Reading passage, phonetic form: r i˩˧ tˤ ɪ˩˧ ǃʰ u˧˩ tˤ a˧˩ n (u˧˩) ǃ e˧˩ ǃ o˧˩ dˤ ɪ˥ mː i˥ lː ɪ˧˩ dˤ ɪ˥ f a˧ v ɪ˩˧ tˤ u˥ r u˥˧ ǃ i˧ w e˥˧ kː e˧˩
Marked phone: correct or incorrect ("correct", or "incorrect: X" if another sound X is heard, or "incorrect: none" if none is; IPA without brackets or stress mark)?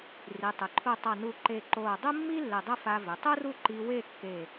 correct